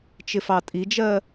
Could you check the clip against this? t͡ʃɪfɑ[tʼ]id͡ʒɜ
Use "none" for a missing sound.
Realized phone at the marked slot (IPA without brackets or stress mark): tʼ